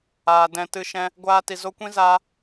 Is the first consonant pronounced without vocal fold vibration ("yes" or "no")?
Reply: no